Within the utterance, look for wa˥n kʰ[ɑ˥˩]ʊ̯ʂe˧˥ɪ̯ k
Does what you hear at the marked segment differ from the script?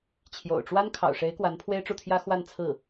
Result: yes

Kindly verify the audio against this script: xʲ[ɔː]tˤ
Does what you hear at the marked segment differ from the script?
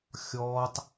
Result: no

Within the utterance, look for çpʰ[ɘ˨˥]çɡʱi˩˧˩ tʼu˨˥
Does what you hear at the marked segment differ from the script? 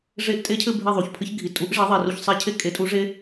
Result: yes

